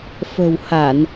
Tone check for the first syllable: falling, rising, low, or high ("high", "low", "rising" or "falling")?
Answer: low